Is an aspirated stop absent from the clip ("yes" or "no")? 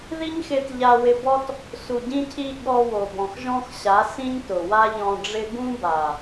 no